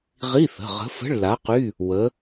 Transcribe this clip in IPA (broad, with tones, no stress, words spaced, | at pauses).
ʁi˧˥˧θə̤˩˧˩ʁə̤˨˥ fə̤˧˥˧ɭla˨˥qy˧˥˧ | wə˨˥